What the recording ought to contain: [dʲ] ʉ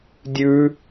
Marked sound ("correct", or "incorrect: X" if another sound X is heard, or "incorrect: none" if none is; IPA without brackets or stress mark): correct